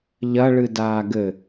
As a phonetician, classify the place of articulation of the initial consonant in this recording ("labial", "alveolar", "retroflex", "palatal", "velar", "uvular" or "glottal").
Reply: palatal